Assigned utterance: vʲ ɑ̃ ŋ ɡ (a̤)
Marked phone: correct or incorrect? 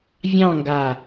incorrect